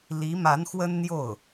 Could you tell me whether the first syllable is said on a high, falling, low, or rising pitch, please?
rising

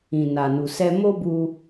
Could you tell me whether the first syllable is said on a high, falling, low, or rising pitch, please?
low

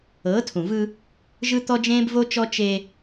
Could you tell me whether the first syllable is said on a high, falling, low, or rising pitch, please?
rising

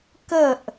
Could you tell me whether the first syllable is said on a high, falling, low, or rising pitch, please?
falling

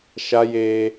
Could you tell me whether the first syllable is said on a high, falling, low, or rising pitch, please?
high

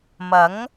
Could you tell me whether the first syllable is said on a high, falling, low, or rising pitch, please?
rising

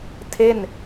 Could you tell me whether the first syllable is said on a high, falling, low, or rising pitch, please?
falling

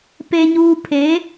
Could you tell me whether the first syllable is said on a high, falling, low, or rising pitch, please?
low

